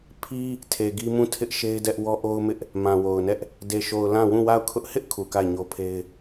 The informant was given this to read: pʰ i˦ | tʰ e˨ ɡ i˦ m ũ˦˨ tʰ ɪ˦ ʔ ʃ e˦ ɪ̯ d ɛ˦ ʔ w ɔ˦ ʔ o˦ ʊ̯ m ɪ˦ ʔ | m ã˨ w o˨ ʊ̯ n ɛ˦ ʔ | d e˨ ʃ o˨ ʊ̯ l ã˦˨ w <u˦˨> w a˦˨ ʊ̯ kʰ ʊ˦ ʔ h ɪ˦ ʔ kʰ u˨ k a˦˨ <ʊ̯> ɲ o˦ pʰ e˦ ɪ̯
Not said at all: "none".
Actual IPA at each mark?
ũ˦˨, ɪ̯

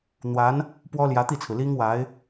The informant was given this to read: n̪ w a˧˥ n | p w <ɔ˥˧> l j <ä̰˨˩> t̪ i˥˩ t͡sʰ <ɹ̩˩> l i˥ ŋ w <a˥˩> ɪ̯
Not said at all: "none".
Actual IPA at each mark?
ɔ˥, ä˧˥, ɹ̩˩, a˧˥

